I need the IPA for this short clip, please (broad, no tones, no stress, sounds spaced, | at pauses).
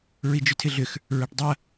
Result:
ɹ i d͡ʒ ʏ tʰ ɪ ɮ ʏ x | ɹ a ʈ dˤ ɐ